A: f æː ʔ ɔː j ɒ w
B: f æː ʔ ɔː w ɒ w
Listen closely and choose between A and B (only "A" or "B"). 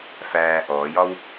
A